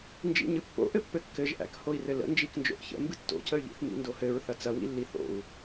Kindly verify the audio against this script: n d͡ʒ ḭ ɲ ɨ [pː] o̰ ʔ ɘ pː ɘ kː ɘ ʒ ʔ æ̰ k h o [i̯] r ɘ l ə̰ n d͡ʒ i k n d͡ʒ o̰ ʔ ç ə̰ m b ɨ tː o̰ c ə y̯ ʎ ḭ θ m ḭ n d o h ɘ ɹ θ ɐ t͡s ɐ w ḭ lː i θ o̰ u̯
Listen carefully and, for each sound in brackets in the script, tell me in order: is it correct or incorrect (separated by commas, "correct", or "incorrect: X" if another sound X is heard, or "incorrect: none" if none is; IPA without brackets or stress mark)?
correct, correct